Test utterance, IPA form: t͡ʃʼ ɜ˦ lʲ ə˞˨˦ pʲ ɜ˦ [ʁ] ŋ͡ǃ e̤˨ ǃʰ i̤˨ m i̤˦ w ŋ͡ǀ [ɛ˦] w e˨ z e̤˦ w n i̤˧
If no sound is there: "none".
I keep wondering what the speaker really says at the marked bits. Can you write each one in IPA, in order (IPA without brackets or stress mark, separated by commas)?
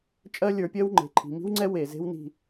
w, ɛ˦